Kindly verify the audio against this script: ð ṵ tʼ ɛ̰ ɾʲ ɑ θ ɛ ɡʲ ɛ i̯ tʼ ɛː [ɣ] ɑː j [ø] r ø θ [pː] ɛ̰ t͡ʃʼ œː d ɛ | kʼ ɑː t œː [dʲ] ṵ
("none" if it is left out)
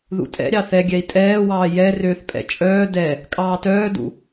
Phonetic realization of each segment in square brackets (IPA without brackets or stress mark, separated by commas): w, ɛ, pʼ, d